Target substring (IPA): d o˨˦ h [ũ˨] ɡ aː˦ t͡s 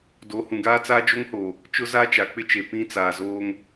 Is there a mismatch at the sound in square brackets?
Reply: no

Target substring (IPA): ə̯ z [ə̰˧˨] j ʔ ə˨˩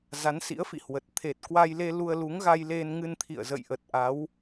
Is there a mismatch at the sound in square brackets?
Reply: no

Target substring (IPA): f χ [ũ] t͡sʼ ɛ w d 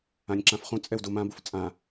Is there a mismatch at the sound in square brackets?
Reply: no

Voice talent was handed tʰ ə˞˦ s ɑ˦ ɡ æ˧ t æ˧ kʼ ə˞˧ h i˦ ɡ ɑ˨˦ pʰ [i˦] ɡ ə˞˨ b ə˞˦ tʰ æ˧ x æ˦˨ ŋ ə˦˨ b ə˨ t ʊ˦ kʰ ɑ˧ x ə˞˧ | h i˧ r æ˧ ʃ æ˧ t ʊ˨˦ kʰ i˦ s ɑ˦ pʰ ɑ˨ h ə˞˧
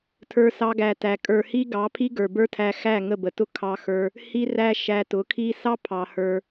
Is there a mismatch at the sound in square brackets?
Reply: no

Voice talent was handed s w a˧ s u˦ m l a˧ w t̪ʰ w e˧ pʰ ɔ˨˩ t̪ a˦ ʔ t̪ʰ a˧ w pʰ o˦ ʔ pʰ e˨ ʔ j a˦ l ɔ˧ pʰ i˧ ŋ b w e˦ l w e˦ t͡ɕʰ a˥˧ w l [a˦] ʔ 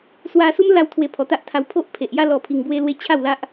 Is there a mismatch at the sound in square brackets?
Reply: no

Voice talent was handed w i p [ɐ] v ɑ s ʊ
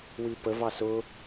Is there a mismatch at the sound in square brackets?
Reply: yes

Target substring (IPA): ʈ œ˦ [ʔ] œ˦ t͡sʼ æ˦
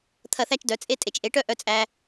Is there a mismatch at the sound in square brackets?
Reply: no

